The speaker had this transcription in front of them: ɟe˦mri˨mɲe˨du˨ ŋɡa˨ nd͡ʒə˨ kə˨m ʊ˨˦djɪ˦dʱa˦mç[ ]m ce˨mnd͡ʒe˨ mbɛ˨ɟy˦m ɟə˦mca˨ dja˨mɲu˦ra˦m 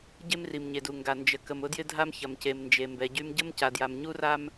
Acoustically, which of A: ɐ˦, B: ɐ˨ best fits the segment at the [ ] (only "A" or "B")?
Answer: B